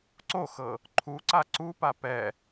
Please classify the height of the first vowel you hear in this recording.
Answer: mid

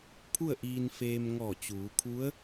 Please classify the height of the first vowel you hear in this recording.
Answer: high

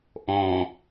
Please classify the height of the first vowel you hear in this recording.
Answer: mid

